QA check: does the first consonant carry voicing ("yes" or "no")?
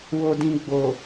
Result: yes